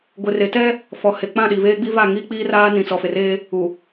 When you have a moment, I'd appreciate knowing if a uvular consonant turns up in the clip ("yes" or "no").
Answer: no